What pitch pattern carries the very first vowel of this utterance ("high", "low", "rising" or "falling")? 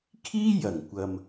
high